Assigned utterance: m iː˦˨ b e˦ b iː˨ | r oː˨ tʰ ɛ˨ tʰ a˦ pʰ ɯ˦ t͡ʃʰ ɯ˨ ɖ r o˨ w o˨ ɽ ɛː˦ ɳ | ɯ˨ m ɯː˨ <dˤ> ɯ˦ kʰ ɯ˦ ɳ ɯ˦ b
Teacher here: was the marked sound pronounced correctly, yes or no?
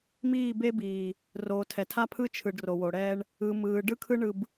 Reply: no